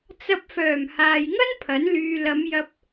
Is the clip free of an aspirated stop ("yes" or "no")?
no